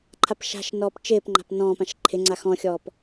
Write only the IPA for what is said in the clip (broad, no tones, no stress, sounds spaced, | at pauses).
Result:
ǃʰ a p ʃ a̤ ʃ n ɔː p t͡ʃ ɪː p ŋ͡ǃ a̤ p n ɔ̃ː p ã ʃ ǃʰ ɪ ŋ͡ǀ a x ɔ̃ xʲ ɔː p